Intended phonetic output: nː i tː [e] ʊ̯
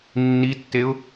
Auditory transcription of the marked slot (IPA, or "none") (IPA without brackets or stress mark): e